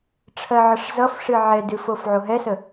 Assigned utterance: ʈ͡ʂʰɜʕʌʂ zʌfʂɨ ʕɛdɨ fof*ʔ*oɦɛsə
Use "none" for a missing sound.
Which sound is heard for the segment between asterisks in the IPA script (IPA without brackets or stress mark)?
ʕ